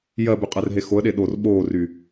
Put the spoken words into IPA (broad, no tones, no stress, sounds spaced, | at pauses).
j ɜ b y qʼ ɛ r ɦ e x o ə̯ ɗ e ɗ o r ɓ oː r y